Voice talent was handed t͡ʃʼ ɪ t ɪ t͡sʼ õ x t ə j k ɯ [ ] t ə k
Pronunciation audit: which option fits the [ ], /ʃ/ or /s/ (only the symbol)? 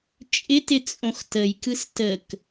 s